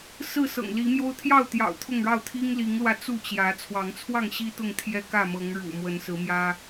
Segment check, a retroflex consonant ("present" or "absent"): present